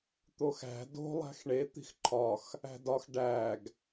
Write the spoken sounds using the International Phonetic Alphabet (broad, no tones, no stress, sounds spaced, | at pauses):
t̪ o x æ̤ d o̤ lˠ æ̤ x ɳ e t̪ i̤ x ǃʰ ɒ x | æ̤ d ɒ x ɖ æ ɡ